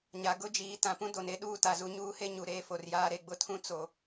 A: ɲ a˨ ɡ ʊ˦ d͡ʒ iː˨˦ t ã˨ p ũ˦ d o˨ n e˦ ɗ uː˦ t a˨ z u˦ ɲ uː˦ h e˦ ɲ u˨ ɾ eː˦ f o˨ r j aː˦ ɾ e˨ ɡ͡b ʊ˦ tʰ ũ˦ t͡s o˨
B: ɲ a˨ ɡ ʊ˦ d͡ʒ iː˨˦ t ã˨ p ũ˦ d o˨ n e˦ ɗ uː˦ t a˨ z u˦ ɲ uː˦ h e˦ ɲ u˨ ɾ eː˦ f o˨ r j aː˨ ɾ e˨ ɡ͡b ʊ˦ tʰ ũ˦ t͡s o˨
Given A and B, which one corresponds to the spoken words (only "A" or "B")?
A